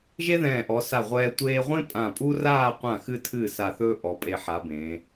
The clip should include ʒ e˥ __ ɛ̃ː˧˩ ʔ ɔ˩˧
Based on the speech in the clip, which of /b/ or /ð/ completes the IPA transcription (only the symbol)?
ð